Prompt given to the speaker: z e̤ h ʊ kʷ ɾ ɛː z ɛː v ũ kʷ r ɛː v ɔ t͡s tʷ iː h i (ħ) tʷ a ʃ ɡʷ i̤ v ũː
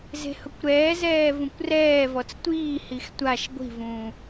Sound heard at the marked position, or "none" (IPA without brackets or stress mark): x